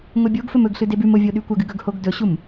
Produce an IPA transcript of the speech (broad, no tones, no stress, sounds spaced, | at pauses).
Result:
ŋʷ e bʲ o ɡ f ɵ m ɵ ɡ ɬ ɨ d e b ʉ m o vʲ o ɗ ʉ kʷ ɐ ɡ ɨ ɡ ɵ ɡ h o ɡ d ɵ ɕ u m